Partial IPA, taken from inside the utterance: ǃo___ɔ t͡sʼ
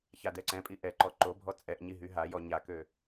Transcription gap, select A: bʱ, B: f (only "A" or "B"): A